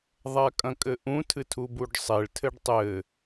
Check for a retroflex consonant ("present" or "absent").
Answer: present